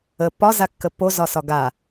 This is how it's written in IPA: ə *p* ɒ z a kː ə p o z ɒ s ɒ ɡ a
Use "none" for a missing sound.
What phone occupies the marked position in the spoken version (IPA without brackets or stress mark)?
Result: p